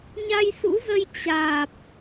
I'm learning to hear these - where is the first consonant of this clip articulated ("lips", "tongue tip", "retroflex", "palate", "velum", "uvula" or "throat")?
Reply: palate